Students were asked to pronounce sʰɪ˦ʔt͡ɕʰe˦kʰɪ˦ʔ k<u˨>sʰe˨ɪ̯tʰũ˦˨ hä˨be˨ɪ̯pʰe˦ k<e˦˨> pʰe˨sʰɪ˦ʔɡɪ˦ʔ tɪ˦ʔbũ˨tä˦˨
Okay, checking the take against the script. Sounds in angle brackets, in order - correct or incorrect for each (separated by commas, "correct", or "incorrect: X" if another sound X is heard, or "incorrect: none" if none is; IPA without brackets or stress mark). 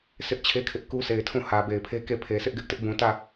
incorrect: u˦, correct